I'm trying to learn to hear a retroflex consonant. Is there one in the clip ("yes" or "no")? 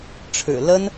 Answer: yes